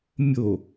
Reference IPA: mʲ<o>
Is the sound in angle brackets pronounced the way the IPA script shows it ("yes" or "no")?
yes